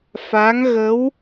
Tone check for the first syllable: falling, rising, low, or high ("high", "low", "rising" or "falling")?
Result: rising